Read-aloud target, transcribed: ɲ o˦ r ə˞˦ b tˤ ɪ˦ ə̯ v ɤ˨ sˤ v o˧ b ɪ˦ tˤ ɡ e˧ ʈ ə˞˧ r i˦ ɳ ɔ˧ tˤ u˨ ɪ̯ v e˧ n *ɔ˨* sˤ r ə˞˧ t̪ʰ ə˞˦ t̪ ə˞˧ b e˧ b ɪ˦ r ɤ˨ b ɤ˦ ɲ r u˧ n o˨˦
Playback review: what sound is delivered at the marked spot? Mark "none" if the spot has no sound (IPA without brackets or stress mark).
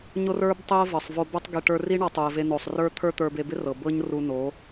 o˨